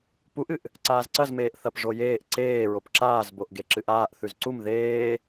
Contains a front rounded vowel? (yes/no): no